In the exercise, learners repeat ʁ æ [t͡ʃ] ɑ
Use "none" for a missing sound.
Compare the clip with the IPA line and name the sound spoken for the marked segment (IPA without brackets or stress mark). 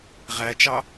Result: t͡ʃ